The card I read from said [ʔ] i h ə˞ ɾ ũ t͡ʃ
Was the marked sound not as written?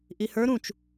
no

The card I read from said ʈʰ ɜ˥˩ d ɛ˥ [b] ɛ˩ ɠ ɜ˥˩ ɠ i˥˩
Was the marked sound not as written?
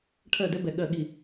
no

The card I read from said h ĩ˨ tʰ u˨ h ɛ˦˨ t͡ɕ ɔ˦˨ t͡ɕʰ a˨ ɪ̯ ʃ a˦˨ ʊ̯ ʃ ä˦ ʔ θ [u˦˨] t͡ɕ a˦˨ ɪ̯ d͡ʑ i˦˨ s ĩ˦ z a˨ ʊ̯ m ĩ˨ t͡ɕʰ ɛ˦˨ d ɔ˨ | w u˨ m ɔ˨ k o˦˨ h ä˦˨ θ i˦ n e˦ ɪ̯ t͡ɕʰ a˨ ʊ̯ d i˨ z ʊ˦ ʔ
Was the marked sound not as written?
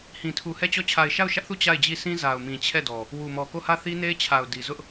no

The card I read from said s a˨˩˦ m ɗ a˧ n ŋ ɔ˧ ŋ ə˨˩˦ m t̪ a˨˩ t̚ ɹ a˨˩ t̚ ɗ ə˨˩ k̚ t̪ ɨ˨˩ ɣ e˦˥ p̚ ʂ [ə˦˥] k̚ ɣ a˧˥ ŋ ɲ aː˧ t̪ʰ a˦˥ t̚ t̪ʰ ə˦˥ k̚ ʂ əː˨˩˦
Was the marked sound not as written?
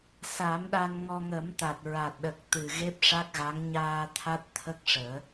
yes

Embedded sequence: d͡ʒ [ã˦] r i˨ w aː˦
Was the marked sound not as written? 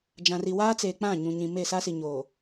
yes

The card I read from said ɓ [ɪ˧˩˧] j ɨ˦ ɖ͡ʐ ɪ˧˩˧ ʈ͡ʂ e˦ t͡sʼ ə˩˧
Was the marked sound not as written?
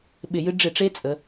no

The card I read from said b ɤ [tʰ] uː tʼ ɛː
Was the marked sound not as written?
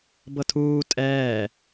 no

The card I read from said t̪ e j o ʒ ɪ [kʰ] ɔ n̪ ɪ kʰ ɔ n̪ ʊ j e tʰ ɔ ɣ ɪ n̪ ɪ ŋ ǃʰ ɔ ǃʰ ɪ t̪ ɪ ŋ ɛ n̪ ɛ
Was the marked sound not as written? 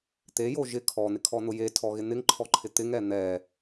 no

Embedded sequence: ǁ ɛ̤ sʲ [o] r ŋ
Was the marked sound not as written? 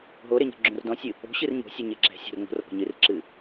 yes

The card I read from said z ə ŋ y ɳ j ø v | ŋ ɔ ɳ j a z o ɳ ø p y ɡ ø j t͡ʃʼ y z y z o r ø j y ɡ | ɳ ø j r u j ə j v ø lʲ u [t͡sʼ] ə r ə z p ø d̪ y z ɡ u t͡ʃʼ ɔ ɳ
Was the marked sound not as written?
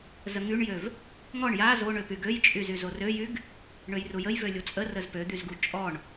no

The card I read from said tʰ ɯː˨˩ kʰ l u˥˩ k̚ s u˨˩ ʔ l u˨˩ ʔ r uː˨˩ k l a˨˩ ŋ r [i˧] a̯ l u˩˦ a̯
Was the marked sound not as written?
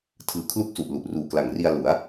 no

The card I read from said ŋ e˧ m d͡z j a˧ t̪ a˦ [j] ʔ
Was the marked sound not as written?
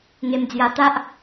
yes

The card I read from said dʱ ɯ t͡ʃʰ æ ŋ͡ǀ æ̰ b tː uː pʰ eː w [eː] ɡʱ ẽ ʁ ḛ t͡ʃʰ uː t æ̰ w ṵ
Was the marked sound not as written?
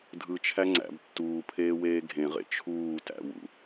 no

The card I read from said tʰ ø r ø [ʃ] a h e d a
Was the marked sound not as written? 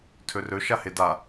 no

